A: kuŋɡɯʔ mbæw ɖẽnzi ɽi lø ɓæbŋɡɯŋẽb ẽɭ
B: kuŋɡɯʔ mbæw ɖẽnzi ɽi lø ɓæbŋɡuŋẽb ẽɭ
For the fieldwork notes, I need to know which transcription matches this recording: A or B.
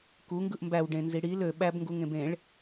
B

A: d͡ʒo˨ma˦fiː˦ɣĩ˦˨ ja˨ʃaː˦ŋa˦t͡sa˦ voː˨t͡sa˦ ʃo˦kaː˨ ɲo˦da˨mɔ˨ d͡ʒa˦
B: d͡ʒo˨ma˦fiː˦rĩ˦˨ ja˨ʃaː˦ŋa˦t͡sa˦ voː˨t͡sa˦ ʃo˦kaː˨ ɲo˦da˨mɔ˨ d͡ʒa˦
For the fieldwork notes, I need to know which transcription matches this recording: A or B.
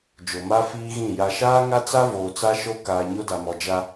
A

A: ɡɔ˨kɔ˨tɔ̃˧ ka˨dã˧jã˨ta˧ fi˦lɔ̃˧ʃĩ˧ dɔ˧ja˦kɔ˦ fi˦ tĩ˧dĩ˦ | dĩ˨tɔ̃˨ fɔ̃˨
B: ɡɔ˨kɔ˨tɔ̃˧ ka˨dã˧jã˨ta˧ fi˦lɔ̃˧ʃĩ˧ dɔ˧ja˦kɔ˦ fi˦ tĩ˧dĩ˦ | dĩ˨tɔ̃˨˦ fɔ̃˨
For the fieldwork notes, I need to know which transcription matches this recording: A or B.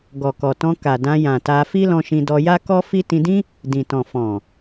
A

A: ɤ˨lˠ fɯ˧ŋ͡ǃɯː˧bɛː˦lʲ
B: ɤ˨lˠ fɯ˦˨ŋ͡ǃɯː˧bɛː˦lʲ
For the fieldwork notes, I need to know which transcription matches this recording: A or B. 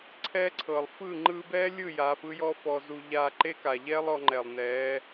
B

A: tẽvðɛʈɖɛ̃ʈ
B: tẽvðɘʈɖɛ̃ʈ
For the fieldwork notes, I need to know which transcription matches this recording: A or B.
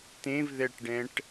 A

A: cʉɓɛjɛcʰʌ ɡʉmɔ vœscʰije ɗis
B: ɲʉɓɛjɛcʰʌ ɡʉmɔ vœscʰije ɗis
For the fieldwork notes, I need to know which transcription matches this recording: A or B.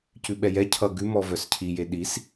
A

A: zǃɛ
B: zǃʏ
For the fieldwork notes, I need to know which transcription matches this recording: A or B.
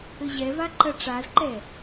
A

